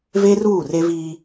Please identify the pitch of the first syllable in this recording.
high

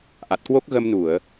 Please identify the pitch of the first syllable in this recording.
low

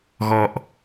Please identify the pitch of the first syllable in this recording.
low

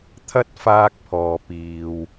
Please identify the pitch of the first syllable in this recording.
high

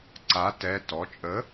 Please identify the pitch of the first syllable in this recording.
rising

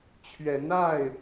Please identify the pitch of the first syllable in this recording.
rising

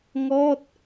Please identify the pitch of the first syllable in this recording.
falling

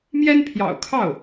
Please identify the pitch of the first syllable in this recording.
high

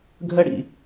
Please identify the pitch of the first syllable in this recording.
high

